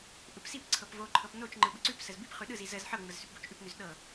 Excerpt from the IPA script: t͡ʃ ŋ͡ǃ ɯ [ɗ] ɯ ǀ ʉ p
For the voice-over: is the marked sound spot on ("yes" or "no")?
no